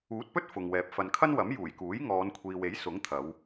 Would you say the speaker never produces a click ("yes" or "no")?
yes